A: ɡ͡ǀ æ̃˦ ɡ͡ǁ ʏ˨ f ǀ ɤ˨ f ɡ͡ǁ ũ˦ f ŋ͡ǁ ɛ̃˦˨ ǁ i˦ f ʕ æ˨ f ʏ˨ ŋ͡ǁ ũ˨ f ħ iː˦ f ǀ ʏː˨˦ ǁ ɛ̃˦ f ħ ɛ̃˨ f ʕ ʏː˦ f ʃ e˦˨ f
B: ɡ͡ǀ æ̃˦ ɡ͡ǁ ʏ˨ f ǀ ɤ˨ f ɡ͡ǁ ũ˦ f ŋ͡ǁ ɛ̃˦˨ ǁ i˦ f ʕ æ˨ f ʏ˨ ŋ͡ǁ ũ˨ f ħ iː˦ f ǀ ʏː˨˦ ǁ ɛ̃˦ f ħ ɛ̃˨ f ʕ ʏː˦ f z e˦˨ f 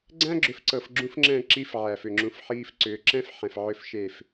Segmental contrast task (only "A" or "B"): A